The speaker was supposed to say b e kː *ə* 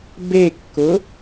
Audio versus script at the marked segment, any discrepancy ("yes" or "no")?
yes